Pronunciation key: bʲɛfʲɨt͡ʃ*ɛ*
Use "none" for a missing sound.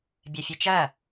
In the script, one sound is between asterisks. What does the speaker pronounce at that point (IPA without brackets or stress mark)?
ɜ